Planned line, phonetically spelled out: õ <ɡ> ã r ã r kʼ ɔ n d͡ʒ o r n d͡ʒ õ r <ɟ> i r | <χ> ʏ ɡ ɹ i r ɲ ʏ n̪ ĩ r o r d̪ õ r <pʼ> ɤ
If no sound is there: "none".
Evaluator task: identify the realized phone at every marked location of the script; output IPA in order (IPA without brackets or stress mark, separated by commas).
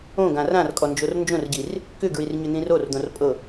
ɡ, ɟ, k, pʼ